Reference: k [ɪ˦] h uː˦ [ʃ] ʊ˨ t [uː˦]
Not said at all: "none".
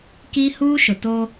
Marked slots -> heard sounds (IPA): i˦, ʃ, oː˦

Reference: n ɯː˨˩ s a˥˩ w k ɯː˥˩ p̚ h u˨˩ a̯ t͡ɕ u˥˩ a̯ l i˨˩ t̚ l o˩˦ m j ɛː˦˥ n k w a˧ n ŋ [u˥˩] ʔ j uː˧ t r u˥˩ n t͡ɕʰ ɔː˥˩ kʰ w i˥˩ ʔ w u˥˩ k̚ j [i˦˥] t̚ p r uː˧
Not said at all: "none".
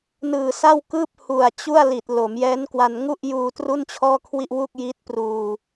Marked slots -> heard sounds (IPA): u˥˩, i˦˥

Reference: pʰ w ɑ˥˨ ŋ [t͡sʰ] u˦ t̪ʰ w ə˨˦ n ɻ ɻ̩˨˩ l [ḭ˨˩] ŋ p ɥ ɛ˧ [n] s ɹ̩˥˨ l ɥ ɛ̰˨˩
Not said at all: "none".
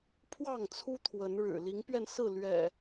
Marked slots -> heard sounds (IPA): t͡sʰ, i˨˦, n

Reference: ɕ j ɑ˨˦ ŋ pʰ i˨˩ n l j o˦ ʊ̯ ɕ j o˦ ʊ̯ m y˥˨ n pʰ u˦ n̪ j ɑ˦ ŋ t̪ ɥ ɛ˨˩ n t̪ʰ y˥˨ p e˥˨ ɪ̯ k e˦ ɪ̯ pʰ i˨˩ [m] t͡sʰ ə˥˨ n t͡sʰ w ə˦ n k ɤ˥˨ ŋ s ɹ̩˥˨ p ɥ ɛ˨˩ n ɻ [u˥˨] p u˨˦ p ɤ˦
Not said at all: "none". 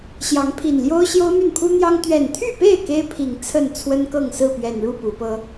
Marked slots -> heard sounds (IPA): ŋ, u˥˨

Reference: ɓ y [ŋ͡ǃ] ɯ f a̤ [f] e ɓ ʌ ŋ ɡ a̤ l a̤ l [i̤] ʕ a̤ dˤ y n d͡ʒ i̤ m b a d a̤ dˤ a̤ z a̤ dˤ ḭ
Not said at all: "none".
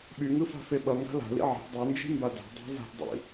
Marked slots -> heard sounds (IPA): ŋ, f, ḭ

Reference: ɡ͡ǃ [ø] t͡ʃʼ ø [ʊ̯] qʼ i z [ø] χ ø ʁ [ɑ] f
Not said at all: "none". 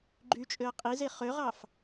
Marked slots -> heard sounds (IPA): y, ə̯, e, ɑ

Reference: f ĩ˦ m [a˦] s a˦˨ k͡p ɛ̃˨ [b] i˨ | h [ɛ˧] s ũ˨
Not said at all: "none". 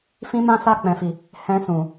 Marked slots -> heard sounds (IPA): ã˦, f, ɛ̃˧

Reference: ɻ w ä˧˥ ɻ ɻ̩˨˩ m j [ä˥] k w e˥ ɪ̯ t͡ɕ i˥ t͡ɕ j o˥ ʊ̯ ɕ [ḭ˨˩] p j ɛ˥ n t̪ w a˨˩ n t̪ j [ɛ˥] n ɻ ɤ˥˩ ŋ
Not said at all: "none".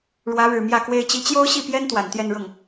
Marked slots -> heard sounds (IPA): ä˥˩, i˥˩, ɛ˥˧

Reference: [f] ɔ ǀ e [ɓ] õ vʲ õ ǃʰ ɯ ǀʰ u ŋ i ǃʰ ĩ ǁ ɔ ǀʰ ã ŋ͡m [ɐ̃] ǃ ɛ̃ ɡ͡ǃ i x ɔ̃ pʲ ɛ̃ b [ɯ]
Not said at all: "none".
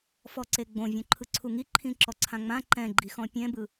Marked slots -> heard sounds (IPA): f, ɡ͡b, ã, ɯ

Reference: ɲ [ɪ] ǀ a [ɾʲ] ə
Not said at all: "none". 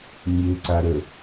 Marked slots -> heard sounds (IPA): ɪ, ɾ

